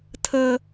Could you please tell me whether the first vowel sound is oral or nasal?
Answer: oral